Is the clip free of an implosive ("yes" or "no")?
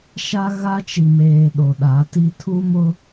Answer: no